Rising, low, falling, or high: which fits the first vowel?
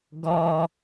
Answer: low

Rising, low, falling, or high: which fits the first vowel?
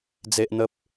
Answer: high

